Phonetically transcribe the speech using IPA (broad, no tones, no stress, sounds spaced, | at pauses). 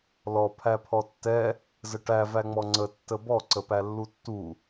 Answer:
l ɔ pʰ æ pʰ ɔ tː ɛ | z ə ʈ æ v æ ŋ͡m ɔ ŋ͡ǀ ə tː ə b ɔ ǀ ə p æ lː u tː u